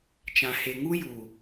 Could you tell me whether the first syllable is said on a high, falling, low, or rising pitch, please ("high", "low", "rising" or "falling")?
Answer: low